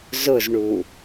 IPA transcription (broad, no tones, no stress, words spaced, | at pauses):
zʊzɳu